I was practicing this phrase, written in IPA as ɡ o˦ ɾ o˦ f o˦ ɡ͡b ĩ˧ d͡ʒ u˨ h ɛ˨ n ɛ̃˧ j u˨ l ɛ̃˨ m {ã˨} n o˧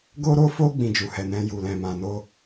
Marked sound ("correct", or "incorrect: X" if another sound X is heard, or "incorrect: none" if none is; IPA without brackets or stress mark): correct